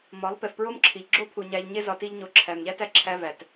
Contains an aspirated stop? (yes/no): yes